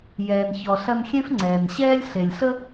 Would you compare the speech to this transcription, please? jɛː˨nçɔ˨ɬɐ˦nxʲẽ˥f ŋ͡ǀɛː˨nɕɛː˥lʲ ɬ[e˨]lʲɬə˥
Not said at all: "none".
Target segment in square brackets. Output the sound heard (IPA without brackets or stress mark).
e˨